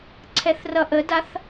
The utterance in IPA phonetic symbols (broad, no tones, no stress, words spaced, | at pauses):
ǀʰɛθrʌʔədaθ